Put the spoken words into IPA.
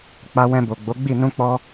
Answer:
k͡p a˧ w ɛ̃˧ b o˨ ɡ͡b o˨˦ ɡ͡b i˦˨ n ũ˧ k͡p ɔ˧

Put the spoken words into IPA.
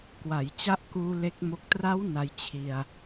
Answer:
k w a˩˦ j t͡ɕ a˦˥ ʔ k uː˧ l e˦˥ k̚ m o˦˥ k̚ t r a˦˥ w n a˧ j t͡ɕʰ i˧ a̯

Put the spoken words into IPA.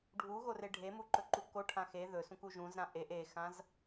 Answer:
ɖʱ u ɣ o r e ɖʱ e m u ǃ ɵ ǃ u k o ʈʰ ã x e ð ɵ s ũ k u ʒ ũ z ɾ ã ʔ e ʔ e x ã z

